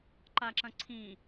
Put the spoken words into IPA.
ǃ a ǁ ɐ̃ ǀʰ ĩ

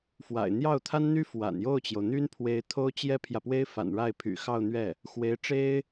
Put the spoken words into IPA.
f w a̰˨˩ ɪ̯ n̪ j ɑ˥˩ ʊ̯ t̪ʰ a˥ n n̪ y˥ f w a̰˨˩ n j o˥˩ ʊ̯ t͡ɕ j o˩ ʊ̯ n̪ y˥ n pʰ w e˧˥ ɪ̯ t̪ʰ o˥ ʊ̯ t͡ɕ j ɛ˥ pʰ j ä˨ p w e˥ ɪ̯ f a̰˨˩ n ɻ a˥˩ ɪ̯ pʰ y̰˨˩ x ɑ˥˧ ʊ̯ n̪ ɥ ɛ˥˩ | x w e˧˥ ɪ̯ ʈ͡ʂ e˥ ɪ̯

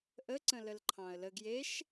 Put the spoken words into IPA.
ʔ ə ǀ ə̃ l ə l ǃʰ ɑ̃ ə̯ l ə ɡ j e ʃ

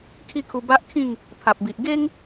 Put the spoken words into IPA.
kʰ i˥˧ kʰ u˧ b a˦ ʔ kʰ ĩ˥˧ ŋ | pʰ a˨ p̚ b i˨ ʔ ɡ e˦ ŋ

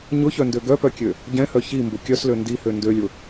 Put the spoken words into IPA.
ɲ ʊ ç œ n d ø ɡ œ p œ kʲ ø | ɟ ɛ̃ h œ ç i m b ʊ kʲ œ s l ø n d i h ø n d ø lʲ ʊ

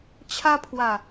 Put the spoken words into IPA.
t͡ɕʰ a˧ pʰ w a˨˩

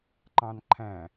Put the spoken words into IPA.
ǃ ɑ̃ n ǃʰ æ̃

